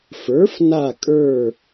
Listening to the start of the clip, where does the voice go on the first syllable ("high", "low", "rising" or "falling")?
rising